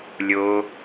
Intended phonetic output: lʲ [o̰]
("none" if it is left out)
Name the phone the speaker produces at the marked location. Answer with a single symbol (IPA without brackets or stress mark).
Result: o